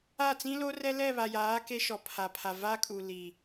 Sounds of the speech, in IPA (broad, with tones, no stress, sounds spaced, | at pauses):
a˦˨ t͡s ĩ˦ l o˦ r ɛ˦ l ɛ˦˨ β a˨ j aː˨˦ k e˦ ʃ ɔ˨ pʰ a˨ pʰ a˨ v a˦ kʼ u˨ l i˨